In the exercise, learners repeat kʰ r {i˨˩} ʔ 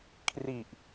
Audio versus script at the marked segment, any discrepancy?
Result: no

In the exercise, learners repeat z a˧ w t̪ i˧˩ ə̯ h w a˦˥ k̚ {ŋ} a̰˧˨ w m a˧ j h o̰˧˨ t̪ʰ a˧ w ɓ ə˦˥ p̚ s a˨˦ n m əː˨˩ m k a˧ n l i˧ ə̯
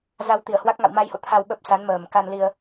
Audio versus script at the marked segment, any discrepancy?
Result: no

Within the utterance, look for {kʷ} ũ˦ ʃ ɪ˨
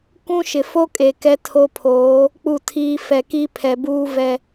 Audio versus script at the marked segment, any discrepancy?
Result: yes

